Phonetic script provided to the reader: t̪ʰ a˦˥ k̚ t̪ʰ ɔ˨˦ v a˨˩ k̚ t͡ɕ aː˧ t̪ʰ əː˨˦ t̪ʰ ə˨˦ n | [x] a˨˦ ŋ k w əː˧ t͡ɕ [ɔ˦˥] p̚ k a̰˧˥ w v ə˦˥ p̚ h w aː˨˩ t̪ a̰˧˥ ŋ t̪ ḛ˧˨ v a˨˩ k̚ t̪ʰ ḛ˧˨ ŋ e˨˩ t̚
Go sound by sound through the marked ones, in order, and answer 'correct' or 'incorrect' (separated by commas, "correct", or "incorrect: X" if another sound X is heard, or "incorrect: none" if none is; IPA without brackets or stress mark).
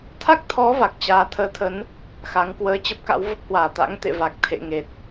correct, incorrect: ə˦˥